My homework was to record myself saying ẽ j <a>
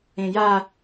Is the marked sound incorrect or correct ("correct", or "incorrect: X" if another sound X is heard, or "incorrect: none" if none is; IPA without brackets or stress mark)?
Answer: correct